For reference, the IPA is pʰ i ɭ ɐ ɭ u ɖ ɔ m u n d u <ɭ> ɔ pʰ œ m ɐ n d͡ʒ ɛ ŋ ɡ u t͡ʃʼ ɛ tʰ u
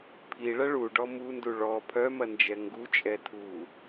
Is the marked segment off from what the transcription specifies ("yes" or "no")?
no